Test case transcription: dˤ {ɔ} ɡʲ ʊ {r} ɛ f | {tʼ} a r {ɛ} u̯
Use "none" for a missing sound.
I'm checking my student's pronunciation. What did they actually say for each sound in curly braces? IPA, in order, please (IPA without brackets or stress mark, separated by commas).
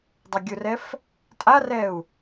ʊ, r, tʼ, ɛ